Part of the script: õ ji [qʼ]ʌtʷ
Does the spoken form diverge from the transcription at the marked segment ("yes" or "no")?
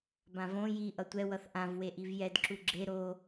yes